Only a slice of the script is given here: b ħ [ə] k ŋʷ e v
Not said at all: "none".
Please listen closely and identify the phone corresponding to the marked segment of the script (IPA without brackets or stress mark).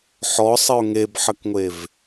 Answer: ə